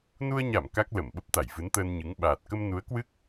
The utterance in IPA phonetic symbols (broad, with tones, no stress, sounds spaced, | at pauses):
n u˧ ə̯ ɲ a˧˩ m k a˦˥ k̚ l ə˧˩ m ɓ ə˦˥ p̚ t̪ a˧˩ j v ɨ˨˦ n t̪ əː˧ n ɲ ɨ˨˦ ŋ ɓ aː˨˩ t̚ k ə˧ m n u˨˦ ə̯ k w ɨ˦˥ k̚